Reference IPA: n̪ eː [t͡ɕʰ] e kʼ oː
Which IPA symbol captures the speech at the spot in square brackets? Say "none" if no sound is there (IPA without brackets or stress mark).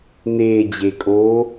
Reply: d͡ʑ